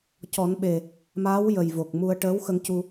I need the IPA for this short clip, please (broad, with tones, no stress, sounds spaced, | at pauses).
c ɔ˨˩˦ n ɓ e˨˩ | m aː˧˥ w j ə˨˩ j v o˨˩ k̚ m u˧ ə̯ ʈ əː˧˥ w x ə˧ ŋ c u˧